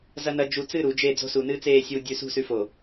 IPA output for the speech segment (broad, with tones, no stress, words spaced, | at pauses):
zɐ˦nɐ˦ d͡ʒu˨t͡sɨ˦˨ ɾu˨˦d͡ʒe˦˨ d͡zo̤˦su˨nɨː˦t͡seː˦˨ sʲuː˨dʲʉ˨sṳ˦˨sʉ˨ fo˨